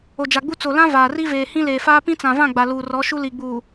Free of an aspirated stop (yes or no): yes